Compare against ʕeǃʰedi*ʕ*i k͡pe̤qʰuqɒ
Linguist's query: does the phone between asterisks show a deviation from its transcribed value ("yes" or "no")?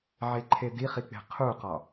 yes